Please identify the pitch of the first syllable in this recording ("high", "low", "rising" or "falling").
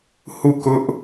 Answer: falling